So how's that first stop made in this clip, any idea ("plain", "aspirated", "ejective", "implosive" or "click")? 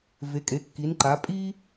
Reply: ejective